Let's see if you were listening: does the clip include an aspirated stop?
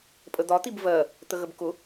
no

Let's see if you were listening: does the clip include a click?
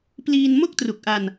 no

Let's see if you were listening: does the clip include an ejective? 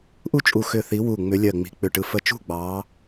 yes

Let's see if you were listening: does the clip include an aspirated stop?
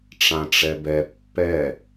no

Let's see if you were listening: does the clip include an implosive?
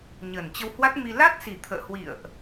no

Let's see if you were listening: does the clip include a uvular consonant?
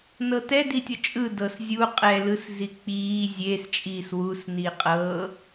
yes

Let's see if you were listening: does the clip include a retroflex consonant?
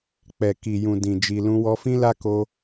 no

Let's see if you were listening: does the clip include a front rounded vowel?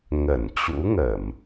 no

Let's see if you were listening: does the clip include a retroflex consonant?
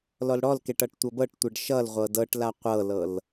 yes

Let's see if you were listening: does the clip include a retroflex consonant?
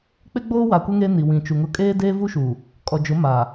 no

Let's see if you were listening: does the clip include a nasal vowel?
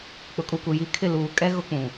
yes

